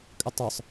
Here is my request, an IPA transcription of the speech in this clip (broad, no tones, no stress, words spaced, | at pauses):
kʼətˤə˞sˤ